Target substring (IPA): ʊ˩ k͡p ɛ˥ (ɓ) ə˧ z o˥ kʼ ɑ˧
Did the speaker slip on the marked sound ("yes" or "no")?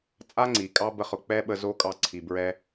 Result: no